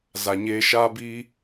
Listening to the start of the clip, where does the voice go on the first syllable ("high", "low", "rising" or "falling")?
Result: low